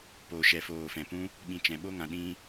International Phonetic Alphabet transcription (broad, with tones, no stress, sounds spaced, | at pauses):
p o˨ ʃ ɛ˨ f oː˨ f ɛ̃˨ p ũ˦ | ɓ ĩ˨ t͡ʃ ɛ̃˨ ɓ o˧ ŋ ã˨ ɗ ĩ˧